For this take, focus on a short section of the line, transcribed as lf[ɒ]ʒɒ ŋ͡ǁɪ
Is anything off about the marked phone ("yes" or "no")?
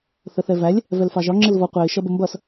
yes